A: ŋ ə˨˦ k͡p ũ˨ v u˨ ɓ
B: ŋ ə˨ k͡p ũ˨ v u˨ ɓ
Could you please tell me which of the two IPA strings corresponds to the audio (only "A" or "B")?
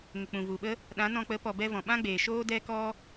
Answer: B